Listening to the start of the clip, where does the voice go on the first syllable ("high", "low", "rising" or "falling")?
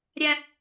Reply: high